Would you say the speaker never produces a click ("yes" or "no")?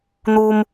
yes